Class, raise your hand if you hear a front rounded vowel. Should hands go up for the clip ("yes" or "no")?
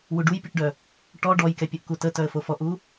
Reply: yes